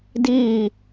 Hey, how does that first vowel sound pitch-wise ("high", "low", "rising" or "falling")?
falling